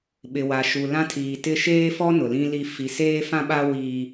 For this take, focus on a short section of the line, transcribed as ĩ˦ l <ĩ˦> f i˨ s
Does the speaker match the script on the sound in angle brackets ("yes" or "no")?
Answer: no